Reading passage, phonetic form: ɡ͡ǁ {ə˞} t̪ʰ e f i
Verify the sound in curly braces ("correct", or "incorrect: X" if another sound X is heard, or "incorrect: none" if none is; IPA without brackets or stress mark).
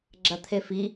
incorrect: ɐ